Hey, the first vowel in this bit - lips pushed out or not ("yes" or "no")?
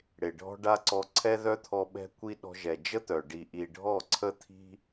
no